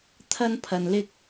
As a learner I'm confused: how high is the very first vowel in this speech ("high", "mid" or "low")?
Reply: low